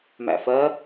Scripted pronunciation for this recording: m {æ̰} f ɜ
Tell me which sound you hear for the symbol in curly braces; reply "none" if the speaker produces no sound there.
æ̰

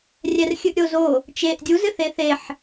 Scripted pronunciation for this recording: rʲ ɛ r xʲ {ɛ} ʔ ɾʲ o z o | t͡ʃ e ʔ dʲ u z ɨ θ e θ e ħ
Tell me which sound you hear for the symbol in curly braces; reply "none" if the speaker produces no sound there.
ɨ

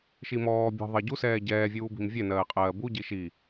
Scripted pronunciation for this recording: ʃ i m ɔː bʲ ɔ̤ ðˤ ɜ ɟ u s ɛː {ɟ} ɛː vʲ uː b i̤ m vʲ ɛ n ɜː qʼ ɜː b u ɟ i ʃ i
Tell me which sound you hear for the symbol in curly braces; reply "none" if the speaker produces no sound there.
ɟ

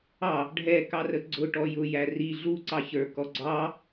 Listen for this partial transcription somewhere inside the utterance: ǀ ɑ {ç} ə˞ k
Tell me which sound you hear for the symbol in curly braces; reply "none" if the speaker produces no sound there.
ç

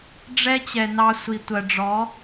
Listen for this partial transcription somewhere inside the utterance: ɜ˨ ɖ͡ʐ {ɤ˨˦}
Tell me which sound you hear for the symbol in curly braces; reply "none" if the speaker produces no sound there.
ɔ˨˦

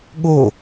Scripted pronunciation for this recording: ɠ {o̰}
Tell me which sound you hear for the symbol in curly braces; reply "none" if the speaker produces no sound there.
o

